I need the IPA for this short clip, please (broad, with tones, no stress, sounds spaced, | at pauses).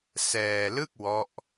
s ɛː˧ l ɯ˥˩ k̚ w ɔ˦˥ ʔ